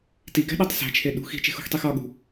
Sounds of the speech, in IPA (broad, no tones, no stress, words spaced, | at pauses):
tiɡæ̤ɗɒtˤ sæ̤t͡ʃʰe ɗṳ xi̤t͡ʃe̤xṳxtˤix ɒɠṳ